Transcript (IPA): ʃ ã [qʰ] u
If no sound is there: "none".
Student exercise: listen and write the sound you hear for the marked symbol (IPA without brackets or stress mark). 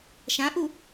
ʔ